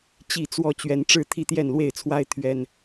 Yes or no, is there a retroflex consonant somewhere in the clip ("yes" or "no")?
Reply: yes